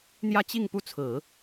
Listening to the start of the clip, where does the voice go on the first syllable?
falling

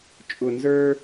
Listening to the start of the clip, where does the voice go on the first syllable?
low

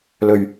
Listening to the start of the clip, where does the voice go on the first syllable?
low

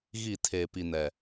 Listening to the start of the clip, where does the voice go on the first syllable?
falling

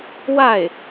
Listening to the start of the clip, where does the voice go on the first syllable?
falling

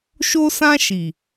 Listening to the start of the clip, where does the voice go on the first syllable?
high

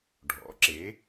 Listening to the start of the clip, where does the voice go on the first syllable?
rising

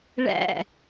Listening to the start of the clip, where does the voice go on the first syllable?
falling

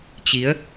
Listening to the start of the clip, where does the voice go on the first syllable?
rising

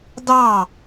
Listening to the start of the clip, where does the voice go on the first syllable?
falling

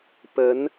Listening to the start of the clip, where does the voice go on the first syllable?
rising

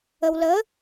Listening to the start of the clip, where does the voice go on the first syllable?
low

